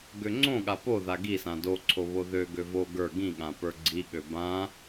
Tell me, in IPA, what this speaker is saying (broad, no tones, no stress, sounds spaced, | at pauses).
ɡ ø ŋ͡ǀ õ ɠ a p o ð a ɡ i s ã d o ǀʰ o β o ð ø ɡ ø v o ɡ ə˞ ɡ ĩ ɠ ã p ə˞ ɡ͡ǀ i ɠ ø b ã